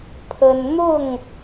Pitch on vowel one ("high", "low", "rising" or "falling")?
high